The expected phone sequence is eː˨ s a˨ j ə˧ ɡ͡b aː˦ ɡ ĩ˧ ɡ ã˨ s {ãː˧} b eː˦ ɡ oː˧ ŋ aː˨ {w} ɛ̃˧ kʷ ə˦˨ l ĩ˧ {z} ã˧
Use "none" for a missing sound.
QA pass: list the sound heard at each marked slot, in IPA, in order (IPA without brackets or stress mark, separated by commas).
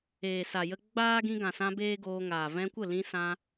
ã˧, v, s